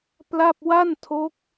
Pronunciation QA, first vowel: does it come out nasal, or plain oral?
oral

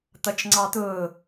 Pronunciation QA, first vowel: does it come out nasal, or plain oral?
oral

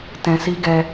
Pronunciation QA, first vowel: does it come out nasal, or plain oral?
nasal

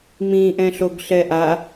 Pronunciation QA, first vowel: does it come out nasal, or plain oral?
nasal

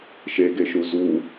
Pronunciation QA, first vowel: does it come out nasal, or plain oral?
oral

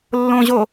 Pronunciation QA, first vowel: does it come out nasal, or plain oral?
nasal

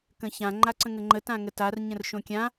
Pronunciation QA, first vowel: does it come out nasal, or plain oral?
nasal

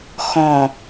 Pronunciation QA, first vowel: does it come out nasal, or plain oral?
nasal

